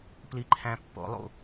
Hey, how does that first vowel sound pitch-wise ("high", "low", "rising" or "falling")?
high